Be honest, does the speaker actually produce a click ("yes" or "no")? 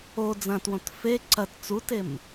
yes